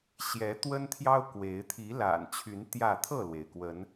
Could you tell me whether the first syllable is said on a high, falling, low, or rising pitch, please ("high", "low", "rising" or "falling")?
rising